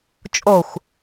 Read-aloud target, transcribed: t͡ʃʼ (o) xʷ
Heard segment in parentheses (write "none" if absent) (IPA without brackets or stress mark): o